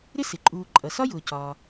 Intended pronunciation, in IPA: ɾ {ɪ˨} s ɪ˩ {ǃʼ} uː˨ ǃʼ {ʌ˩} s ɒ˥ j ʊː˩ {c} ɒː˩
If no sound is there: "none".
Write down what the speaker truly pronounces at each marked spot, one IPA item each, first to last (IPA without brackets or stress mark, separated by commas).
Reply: ɪ˥, ǃʼ, ʌ˩, c